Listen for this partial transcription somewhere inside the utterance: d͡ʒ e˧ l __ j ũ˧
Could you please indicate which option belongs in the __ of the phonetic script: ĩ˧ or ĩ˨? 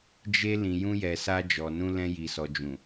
ĩ˨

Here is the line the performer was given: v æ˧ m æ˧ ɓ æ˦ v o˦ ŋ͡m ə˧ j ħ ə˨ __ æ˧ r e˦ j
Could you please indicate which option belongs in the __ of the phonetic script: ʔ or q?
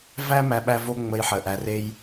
ʔ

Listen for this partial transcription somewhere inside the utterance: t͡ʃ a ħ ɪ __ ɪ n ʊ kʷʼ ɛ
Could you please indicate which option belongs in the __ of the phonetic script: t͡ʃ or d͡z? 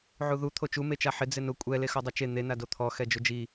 d͡z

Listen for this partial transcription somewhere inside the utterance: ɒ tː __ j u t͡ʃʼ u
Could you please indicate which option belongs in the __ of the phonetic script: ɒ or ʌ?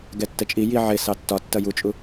ʌ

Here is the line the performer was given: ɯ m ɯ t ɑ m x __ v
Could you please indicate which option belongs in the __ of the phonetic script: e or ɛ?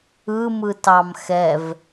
ɛ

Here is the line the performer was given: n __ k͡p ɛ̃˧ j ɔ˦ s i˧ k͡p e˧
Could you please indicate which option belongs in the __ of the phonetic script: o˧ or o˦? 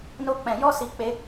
o˦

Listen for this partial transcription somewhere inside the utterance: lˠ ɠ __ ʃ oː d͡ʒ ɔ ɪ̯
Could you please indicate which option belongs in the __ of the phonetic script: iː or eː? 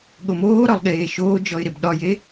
eː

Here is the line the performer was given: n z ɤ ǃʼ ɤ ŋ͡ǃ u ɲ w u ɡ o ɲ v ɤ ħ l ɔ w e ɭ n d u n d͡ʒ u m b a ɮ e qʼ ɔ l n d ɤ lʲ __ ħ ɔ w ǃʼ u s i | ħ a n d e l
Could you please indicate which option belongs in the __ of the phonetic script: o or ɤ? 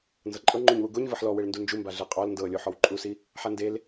o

